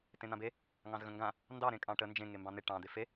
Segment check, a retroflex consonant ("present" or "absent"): present